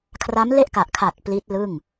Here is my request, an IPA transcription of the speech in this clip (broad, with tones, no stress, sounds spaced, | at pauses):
kʰ r a˦˥ m l e˥˩ ʔ k a˨˩ ʔ kʰ a˨˩ t̚ p l i˦˥ t̚ l ɯ˥˩ ŋ